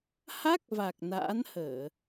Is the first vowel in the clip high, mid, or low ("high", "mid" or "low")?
low